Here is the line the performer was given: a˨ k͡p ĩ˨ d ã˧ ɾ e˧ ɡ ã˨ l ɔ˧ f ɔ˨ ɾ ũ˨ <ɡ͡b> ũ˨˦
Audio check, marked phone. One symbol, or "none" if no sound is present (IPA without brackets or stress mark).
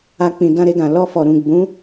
ɡ͡b